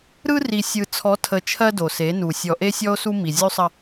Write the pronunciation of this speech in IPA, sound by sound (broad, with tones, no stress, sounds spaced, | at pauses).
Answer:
ɾ ɯ˦ r i˨ sʲ ɯ˨ t͡sʰ ɔ˨˦ tʰ ə˨ t͡ʃʰ ɜ˦ d o˨ s e˨˦ n u˨ sʲ ɔ˨ ʔ e˦ sʲ ɔ˦ o̯ s u˦ m i˨ zʲ u˦ sˤ ə˦